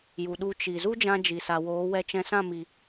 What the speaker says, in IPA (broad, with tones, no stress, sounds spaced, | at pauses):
j u˨ ɗ u˧ t͡ʃ i˨ z u˦ d͡ʒ ã˧ d͡ʒ i˨ s a˨ w oː˨˦ w ɛ˧ t͡ʃ ɛ̃˧ s ã˦˨ m i˨